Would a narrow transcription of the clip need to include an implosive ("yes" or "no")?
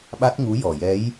yes